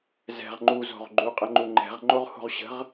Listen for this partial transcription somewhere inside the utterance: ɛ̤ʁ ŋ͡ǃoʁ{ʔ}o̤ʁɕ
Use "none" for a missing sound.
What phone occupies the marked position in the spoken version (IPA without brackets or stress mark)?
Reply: h